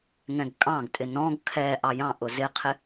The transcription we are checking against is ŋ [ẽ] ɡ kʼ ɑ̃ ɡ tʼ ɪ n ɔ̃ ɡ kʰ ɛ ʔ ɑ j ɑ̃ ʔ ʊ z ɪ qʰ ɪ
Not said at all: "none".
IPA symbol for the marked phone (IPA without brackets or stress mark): ɛ̃